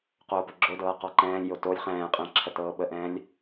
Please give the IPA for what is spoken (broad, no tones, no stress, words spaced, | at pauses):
qoːpəɡ͡ǁodɤː qɔǃɛ̃ːlʲjo tolʲ χɛ̃ːqʼɛ̃ ǁʰətɤːɓəʔɛ̃ːlʲ